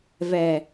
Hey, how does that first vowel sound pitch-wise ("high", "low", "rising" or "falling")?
low